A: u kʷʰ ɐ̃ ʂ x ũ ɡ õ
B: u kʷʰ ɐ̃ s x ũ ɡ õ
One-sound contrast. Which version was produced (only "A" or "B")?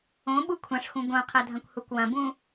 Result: A